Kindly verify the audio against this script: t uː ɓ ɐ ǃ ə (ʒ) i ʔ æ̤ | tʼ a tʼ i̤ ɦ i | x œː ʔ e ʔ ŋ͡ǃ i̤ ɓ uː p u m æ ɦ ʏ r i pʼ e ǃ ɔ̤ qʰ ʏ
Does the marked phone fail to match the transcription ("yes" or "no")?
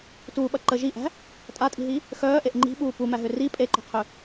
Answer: no